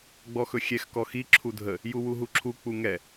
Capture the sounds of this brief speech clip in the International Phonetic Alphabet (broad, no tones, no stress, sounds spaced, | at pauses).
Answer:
ɡ͡b ɔ x ɵ xʲ ɛ x k ɔ x i ǁʰ u dʱ ə | j u w u ɦ u ǁʰ u k͡p u ŋ ɛ